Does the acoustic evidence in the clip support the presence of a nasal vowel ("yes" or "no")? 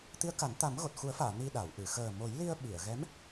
no